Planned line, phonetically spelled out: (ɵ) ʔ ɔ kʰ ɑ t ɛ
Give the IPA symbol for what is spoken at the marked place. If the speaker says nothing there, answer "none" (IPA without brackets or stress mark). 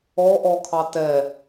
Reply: ɔ